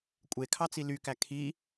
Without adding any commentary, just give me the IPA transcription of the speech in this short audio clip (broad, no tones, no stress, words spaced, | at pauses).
kʷʼekʰɑt͡si lykæ kʰi